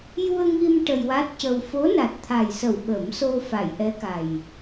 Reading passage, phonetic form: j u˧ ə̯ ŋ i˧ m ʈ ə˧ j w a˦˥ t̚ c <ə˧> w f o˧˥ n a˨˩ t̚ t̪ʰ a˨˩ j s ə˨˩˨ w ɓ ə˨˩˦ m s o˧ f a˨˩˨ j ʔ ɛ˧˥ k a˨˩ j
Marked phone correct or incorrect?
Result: correct